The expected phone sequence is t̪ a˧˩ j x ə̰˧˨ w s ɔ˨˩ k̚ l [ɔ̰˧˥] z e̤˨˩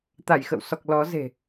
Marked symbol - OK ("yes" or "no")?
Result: no